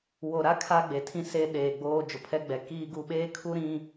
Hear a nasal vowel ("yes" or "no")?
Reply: yes